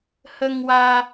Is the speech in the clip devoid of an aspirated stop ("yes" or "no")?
yes